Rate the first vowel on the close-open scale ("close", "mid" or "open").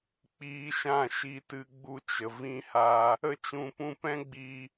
close